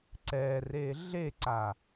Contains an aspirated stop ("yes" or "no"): no